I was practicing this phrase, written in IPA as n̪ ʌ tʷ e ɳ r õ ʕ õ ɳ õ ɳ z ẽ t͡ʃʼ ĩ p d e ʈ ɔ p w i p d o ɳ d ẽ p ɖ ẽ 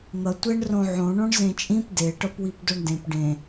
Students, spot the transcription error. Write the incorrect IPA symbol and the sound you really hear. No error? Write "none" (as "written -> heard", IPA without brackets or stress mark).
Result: ɔ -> ʌ